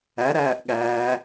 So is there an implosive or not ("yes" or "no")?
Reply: yes